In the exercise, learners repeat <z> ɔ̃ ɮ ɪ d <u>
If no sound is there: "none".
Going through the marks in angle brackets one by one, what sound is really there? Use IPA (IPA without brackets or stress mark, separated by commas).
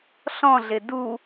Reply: ɬ, u